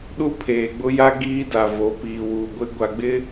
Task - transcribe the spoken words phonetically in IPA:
ɗu˦pʰeː˨ɡ͡bʊ˦ja˦ ɡiː˦ da˨vo˨˦ piː˨wuː˨ɡʷɪ˦ ɡʷa˨ɡ͡bɪ˦

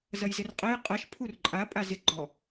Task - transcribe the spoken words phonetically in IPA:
zɐjzɪrqʼɛj qʼɐʃ pʰurǃʼa pʼazɪ ɡ͡ǃɔ

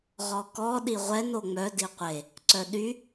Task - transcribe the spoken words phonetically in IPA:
ʁɔkɔ ɗiʁʷɛn oŋ͡mœ diqʷe | ǀœɗy

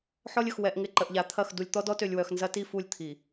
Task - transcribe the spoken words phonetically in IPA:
ħɔ˦lʲə˨x wɛ˨ʔŋɪ˨ ǃə˨ʔʎa˨t̪ʰɐ˦˨x du˨lʲt̪ɔ˦dɔ˦tø˨lʲ wœ˨xnzɐ˦ti˦˨ fu˦˨lʲt̪ʰi˨

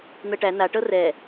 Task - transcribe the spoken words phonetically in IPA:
n̪ɤʈæ na ʈɤrɛ

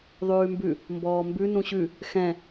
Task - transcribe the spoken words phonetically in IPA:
ðˤʉːmbʉ | mbɔːmbʉ nũɕʉ | xɛ̃

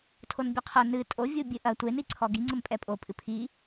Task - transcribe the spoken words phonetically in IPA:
tʰonbʲɛqʰo nɨ tʼovʲu bʲɨʔɐ tʷeniǀʰɔ ɡi ŋ͡ǀɘmpʼɛpʼo pʼɨpʰi

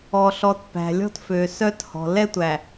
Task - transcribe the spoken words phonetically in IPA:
ɔ˨ɬɔ˨t pæ̤˨ lʲɔ̤˦tfø˨sœ˦thɔ̤˨ lɛ˦tʷæ˨

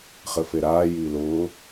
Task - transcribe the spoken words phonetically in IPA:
χɘfeɾaː jiːlʊː

